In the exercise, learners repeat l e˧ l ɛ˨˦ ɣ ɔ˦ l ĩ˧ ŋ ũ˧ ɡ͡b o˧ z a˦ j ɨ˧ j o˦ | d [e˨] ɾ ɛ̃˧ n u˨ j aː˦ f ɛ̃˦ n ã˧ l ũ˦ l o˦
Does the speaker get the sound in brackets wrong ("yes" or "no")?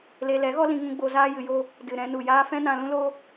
yes